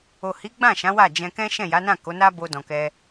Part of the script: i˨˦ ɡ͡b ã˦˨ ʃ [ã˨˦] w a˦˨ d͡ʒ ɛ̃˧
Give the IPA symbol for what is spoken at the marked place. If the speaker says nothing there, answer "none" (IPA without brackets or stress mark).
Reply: ã˨˦